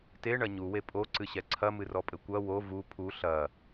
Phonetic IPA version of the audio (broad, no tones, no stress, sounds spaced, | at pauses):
t e ɳ ɐ ɲ u w e pʼ o ǀ ɨ ɕ ɛ ǀʰ ɐ m ɨ r ɔ pʼ ɘ kʷ ɐ w o v u pʰ u ɬ ɐ